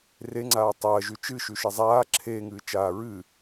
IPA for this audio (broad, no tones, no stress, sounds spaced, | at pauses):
r e ŋ͡ǀ aː tˤ ɐː ʒ ʉ t͡ʃ ɨ ʃ ʉ ʃ e zˤ aː ǁʰ eː ŋ ɨː t͡ʃ aː ɹ ɨ